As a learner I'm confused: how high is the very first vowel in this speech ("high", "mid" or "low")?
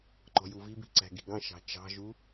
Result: mid